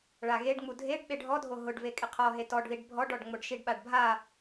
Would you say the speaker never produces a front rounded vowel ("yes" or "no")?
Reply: yes